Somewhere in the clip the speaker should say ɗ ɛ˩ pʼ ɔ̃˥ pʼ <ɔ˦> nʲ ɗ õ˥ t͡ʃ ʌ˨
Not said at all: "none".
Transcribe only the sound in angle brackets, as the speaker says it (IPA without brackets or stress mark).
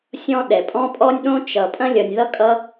ɔ˥